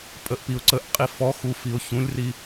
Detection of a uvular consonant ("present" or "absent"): present